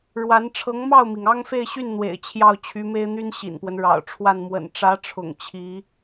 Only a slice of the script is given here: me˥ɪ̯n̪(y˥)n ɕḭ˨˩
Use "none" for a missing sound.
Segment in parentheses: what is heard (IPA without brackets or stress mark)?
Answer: y˥